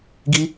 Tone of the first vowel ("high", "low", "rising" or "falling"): high